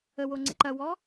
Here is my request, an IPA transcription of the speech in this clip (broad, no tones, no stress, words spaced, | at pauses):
əwo ŋ͡ǀḛǃɐwɔ